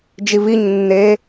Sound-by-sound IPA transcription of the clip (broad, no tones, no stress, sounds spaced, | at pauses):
d͡ʒ i v i ɲ nː e